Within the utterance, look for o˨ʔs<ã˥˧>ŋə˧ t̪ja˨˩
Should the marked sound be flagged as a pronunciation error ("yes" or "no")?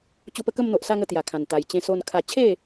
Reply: yes